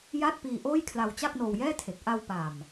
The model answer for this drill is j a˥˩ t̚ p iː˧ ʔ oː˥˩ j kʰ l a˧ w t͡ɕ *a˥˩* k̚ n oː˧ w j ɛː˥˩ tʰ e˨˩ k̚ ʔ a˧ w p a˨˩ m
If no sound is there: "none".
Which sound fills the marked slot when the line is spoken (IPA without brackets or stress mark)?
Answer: a˥˩